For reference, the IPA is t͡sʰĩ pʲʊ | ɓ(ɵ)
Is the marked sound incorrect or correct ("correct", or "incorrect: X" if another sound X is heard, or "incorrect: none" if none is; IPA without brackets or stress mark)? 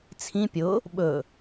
correct